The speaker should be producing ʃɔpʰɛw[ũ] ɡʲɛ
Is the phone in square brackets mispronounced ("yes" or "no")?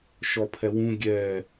no